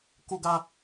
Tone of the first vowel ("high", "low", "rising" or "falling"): high